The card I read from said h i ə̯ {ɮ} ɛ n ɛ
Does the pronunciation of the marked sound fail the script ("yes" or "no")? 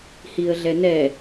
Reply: no